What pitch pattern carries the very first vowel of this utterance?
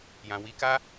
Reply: low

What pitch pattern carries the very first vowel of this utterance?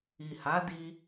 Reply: low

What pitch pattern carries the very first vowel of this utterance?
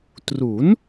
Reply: rising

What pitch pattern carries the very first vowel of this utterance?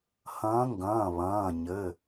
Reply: rising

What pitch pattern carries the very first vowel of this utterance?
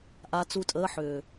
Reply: rising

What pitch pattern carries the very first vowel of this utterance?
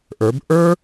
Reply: rising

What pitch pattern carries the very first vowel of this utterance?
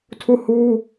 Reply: falling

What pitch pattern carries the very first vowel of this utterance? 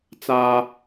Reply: high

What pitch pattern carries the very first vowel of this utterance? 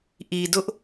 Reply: low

